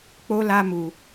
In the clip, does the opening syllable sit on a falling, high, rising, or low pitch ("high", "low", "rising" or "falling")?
high